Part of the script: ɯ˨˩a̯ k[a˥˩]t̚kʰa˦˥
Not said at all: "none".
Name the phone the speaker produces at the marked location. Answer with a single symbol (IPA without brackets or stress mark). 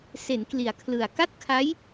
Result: a˥˩